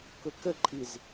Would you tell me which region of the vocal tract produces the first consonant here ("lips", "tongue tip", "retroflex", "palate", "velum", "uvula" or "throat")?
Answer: velum